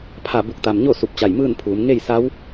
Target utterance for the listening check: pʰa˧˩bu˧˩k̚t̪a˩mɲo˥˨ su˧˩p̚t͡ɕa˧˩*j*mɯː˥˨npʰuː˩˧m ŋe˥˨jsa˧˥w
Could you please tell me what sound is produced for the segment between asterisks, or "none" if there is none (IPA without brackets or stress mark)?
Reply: j